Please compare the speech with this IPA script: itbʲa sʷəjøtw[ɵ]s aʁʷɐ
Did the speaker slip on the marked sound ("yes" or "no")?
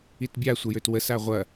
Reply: yes